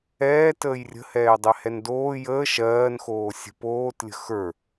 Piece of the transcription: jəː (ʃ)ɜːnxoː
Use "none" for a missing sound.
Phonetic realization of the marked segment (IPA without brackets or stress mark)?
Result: ʃ